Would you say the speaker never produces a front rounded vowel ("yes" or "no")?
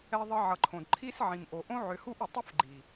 no